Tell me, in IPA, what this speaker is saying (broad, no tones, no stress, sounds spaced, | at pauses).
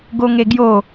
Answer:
ɡ o ŋ e ɡ j o